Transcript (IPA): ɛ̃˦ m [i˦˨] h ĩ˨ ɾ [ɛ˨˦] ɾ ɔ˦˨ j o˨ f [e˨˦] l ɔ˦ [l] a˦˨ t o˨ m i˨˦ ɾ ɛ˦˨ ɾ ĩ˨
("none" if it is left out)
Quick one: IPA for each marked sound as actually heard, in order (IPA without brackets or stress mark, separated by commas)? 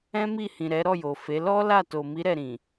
i˦˨, ɛ˨˦, e˨˦, l